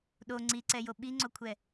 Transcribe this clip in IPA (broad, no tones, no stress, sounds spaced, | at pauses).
ɗ o ŋ͡ǀ i ǀ ɛ j o ɓ i ŋ͡ǀ o kʷʰ ɛ